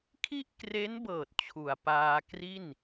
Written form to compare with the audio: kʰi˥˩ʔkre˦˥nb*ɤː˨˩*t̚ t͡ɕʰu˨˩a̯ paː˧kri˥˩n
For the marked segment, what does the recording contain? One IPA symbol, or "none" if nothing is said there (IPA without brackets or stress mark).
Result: ɤː˨˩